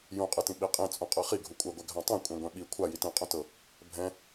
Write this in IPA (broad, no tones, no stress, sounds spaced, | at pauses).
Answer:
j ũ qʼ ɯ t ĩ ɓ i qʼ ĩ t͡sʼ ũ qʼ ɤ χ i ɡʱ u kʷʼ ɛ ɡʷ ɛ ɡʱ ã tˤ ẽ kʷʼ ẽ ɡʷ ɛ̃ ɓ i kʷʰ a j i t ĩ qʼ ũ t ɤ | bʱ ɛ̃